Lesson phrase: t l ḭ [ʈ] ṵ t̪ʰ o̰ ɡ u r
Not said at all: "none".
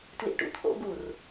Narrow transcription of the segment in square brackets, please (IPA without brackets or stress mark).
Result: ʈ